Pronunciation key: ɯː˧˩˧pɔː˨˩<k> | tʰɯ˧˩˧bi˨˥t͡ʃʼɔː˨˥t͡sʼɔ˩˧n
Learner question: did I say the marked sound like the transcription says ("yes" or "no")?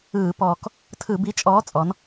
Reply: yes